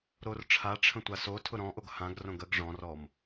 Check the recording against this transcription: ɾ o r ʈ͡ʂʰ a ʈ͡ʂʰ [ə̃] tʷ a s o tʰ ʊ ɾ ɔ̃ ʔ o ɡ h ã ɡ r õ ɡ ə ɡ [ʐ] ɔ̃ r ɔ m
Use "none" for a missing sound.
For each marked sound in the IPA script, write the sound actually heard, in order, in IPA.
ə̃, ʐ

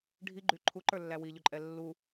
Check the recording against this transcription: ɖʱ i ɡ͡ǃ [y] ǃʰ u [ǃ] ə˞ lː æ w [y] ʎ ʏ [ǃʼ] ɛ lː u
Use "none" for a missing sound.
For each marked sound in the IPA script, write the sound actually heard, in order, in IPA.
y, ǃ, i, ǃʼ

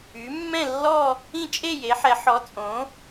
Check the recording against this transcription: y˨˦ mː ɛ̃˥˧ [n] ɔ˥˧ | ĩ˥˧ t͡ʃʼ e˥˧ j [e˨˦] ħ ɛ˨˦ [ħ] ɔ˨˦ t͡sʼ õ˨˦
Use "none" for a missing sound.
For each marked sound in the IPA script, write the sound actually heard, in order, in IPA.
lː, e˨˦, ħ

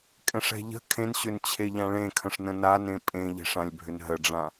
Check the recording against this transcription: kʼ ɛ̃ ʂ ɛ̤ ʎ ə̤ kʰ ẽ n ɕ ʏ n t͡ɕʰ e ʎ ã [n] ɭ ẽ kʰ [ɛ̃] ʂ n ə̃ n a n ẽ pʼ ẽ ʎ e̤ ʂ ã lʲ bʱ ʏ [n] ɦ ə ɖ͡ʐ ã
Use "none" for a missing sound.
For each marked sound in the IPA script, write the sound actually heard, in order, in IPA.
none, ə̃, n

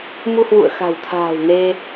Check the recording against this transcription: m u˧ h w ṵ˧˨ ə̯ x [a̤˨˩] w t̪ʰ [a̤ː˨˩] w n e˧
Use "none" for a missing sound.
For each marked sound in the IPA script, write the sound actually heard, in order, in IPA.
a̤˨˩, a̤ː˨˩

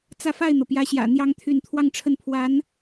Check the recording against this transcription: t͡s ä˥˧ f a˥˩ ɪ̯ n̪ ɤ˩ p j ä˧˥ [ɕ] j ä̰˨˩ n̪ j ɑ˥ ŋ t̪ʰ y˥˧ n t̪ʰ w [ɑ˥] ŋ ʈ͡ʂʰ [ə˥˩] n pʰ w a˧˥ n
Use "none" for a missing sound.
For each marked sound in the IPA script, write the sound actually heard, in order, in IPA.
ɕ, ɑ˥˧, ə˥˩

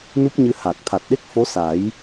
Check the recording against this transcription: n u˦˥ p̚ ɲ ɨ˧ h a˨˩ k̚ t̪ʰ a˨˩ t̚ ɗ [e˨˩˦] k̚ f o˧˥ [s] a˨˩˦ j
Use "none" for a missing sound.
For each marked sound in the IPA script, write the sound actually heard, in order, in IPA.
e˦˥, s

